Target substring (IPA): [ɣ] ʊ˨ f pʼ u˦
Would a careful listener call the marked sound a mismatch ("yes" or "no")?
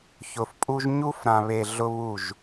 yes